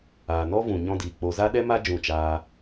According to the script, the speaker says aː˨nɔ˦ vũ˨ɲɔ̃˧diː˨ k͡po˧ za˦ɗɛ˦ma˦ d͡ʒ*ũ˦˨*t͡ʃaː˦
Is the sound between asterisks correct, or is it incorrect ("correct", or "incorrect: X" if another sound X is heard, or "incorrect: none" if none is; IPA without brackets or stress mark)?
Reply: correct